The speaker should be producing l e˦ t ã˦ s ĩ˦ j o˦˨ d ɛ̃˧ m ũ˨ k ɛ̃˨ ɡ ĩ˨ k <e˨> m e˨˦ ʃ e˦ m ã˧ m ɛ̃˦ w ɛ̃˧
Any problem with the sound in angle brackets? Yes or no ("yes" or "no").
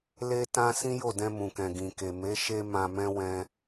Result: no